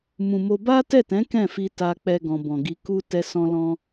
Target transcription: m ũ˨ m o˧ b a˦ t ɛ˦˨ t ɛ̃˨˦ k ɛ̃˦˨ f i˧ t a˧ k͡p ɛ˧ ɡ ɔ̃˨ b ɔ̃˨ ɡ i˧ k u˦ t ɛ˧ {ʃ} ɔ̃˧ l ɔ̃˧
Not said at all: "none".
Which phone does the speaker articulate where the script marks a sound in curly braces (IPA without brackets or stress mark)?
s